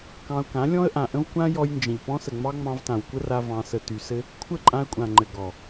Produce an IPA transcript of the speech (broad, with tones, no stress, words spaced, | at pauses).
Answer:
kɑ̃˧ʊ̯kã˨˦ lʲɔ̃˦ə̯ʔã˨ʔə̃˦v kʷã˦ jɔ˧jnd͡ʒə̃˨ʎ pɔ̃˧sə˨ŋ͡mɑ˧ ŋ͡mɑ̃˧vtã˨wkʷə˦ra˧ vɑ̃˧sə˧ty˧ sɘ˦ | kʷʰə˦˨ǃʼã˧ə̯kʷʼã˨ŋ͡ǃɘ˨ ɡɔ˨